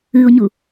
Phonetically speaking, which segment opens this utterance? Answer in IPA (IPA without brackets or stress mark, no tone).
ɨ